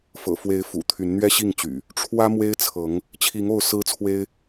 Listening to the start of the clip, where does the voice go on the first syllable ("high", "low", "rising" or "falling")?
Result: low